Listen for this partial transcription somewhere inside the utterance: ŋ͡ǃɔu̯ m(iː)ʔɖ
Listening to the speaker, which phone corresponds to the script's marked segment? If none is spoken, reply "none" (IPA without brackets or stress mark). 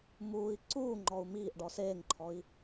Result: iː